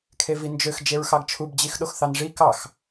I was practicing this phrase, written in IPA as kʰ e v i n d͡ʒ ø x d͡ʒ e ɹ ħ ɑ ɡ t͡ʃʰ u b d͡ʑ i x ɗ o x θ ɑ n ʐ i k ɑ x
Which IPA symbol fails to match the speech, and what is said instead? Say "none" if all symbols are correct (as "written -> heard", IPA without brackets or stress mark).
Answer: ħ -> x